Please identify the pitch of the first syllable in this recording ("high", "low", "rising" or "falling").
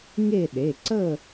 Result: falling